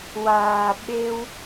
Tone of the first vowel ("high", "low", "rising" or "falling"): low